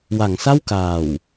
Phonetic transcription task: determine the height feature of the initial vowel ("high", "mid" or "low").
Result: low